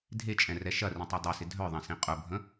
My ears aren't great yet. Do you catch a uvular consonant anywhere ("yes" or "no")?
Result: yes